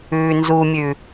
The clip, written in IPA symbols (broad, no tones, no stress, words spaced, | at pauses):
ʉːnzumʲʉ